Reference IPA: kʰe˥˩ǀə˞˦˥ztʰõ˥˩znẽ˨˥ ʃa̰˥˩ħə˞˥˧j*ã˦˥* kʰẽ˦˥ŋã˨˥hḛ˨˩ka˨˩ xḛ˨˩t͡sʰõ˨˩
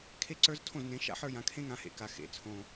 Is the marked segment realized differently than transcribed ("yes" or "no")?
yes